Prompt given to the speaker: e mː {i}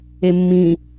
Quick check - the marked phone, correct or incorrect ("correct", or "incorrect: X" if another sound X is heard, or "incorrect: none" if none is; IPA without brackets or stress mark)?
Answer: incorrect: ĩ